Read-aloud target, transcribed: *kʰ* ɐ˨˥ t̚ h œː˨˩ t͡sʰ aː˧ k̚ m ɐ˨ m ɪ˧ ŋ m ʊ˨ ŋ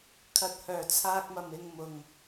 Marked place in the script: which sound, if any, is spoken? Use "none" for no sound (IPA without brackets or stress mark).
kʰ